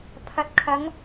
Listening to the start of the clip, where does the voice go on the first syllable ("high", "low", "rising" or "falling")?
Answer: low